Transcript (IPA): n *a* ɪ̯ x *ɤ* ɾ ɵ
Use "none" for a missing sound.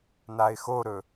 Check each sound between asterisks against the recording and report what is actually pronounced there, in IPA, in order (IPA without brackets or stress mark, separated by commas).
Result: a, o